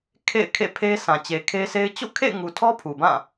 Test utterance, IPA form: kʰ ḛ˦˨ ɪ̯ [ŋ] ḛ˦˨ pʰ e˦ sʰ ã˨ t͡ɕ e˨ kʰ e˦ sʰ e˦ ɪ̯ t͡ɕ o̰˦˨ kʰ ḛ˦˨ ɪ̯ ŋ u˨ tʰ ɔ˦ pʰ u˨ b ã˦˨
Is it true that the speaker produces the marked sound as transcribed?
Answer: no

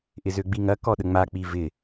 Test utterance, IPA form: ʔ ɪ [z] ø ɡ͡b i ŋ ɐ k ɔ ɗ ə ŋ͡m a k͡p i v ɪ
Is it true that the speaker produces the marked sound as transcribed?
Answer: yes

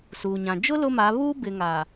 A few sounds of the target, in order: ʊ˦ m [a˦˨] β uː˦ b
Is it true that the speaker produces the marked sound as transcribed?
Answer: no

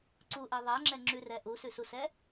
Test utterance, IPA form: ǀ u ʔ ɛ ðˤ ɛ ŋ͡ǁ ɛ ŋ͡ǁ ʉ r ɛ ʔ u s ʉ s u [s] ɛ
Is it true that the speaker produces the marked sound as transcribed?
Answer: yes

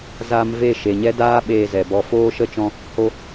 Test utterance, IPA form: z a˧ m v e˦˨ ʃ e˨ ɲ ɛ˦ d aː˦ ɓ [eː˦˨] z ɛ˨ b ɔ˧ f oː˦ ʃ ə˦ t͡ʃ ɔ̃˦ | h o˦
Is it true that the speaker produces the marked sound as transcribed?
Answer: no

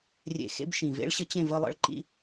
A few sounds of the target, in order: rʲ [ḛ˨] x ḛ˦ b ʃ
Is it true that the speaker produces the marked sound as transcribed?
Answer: yes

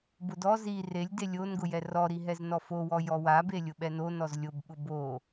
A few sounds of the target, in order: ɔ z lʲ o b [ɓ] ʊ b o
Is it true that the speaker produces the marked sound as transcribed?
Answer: yes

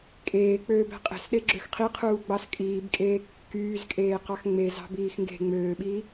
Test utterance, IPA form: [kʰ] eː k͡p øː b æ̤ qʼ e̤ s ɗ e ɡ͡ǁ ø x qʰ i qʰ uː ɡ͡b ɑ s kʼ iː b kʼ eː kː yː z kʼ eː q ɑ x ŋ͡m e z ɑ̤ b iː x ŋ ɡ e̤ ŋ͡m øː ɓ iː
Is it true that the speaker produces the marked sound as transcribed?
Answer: no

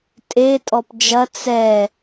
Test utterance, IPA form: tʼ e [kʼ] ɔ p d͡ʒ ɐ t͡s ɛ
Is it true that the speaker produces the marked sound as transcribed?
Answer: no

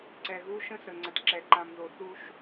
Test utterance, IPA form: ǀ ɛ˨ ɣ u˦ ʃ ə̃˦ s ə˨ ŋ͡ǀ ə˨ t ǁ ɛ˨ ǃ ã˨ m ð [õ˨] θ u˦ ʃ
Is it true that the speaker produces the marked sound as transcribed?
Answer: no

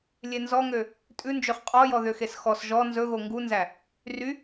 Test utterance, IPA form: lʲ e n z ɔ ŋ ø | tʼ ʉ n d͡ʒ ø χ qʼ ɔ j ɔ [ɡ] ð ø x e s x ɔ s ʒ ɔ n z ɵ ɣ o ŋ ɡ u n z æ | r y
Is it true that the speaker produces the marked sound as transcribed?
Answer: no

